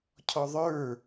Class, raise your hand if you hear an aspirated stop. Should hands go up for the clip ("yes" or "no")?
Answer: yes